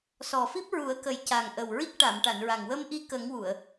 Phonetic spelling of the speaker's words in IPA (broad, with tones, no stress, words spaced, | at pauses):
sɔ˨˩fi˦˥p̚ɹu˨˩˦ə̯kə˨˩j ca˨˩ŋ ʔə˨˩wɹi˦˥k̚ ʈa˨˩˨mʈa˨˩˨nɹa˨˩ŋ wə˧mʔi˧kə˨˩˦ŋ wu˨˩˨ə̯